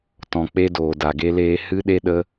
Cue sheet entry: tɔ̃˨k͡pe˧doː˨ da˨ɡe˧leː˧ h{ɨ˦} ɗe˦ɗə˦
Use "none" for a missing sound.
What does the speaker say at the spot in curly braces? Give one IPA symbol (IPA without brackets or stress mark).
ɨ˦